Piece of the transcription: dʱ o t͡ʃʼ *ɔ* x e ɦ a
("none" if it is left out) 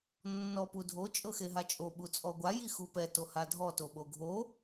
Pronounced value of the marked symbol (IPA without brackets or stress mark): ɤ